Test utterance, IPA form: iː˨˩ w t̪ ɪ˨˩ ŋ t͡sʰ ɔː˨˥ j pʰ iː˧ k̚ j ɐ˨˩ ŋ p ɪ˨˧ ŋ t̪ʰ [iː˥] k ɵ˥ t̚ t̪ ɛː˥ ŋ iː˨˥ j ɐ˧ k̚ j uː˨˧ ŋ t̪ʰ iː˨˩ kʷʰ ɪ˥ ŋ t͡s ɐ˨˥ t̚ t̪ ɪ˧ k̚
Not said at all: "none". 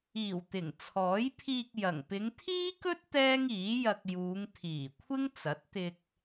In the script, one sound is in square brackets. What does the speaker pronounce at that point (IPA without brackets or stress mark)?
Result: iː˥